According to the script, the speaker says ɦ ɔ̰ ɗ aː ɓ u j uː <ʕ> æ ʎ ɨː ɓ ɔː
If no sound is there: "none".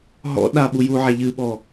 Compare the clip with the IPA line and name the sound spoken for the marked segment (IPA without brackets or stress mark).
ʕ